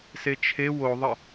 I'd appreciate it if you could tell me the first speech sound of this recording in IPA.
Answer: s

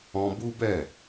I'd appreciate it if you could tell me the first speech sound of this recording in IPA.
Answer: ɔ̃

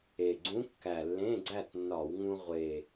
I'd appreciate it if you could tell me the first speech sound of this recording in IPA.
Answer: e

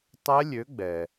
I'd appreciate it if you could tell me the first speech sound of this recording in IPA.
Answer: tˤ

